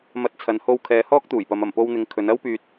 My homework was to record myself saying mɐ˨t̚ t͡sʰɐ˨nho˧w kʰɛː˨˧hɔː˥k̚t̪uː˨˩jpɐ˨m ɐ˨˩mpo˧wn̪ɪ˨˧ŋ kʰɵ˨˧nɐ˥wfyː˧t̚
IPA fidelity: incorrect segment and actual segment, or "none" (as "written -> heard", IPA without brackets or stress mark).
f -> p